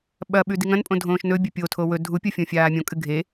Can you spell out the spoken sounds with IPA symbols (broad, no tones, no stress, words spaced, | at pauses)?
ɓɐɓʉ diŋɐ̃npʼõ dʱõːʃnɵbʲɵ pʲotʰo wɵ dʱupʲo fʲõfʲaːmʲõkʼɨ ɡʱe